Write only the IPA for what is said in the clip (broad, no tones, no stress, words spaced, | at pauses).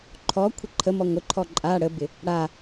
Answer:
ǃʰɔkʷʰə ǃʰəmɔ ŋʷɪǃʰɔ ǃʼa ɽəbɪ | ɽa